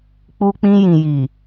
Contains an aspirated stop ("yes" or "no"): no